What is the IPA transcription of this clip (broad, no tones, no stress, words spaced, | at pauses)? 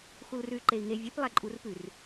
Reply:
xulrʉy̯ǃei̯ŋe vʲʉp lˠæǃʼurpʉr